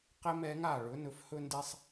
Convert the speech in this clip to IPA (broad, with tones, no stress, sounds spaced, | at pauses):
q e˧ m ɛ˩˧ ŋ a˧˩ ɭ ɵ˩˧ n ɵ˩˧ f h ɵ˧ n d e˧ sˤ